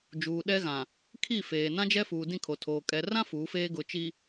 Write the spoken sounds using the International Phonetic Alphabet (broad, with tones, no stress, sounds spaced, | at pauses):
d͡ʒ uː˨ ɗ ɛ˦ ɣ ã˨ | kʰ i˦˨ f eː˨ n ã˦ d͡ʒ ɛ˦ f uː˨ d ĩ˦˨ kʰ o˨ tʰ oː˨ kʼ ɛ˨ r ã˦ f uː˨˦ f eː˦ ɡ ʊ˨ t͡ʃ i˨